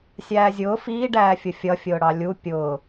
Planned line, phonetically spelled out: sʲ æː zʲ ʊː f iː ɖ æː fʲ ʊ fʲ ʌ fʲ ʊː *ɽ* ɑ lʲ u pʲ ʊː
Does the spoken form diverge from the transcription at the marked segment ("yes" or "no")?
no